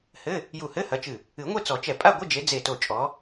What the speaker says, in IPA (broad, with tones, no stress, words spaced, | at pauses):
hɘ˧˥˧ | ju˧˩hɘ˧˥˧hɐ˨˦t͡ʃɨ˧˩ | ɨ˨˩˦ŋʷe˥˧t͡sɔ˨˩˦t͡ʃɛ˧˩ pʼa˥˧ɡʷɘ˧˥˧d͡ʒe˨˦ d͡ze˧˩to˧˩t͡ʃʼɔ˨˦